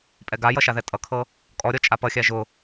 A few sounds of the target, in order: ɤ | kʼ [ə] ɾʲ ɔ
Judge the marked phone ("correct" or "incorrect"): incorrect